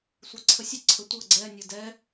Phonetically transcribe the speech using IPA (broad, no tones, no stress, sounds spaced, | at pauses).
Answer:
sʷ ɛ ǀʰ ə sʲ ə ǀʰ ə tʷ ɤ ɡ͡ǀ ɛ nʲ ɤ d ɛ